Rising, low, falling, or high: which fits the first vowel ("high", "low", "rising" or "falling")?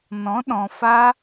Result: rising